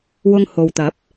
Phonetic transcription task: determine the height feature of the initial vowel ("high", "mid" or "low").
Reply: high